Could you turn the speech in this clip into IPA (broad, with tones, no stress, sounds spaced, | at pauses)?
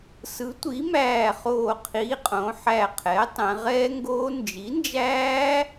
s ɯ˩˥ tʷ i˩˥ m æː˧˩ χ oː˧˩ qʰ i˩˧˩ qʼ õ˩˧ ħ æ˧˩ qʰ ɛ˩˥ tˤ ɛ̃˩˧ ʁ ɛː˦˥ ŋ ɡ oː˦˥ n d͡ʒ i˩˥ n d͡ʒ æː˦˥